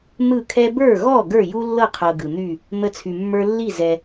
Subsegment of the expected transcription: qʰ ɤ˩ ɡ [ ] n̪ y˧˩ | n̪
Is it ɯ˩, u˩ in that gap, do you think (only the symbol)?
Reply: ɯ˩